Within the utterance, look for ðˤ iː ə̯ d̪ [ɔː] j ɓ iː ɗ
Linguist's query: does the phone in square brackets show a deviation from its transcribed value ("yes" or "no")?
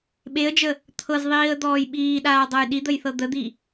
no